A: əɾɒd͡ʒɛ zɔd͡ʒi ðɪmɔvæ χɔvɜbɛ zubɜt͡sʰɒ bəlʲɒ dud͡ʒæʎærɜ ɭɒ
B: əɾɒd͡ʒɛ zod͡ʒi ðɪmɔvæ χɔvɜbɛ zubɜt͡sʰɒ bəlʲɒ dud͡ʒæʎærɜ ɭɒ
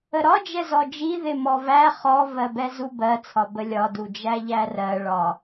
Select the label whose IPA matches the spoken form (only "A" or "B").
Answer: A